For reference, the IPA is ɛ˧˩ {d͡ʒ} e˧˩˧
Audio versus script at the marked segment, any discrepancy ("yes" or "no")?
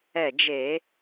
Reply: no